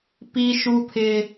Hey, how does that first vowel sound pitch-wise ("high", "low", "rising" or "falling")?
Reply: high